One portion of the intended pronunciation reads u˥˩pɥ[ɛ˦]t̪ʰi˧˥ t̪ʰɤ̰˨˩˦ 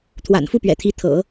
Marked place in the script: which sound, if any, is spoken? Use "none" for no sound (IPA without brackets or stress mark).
ɛ̰˨˩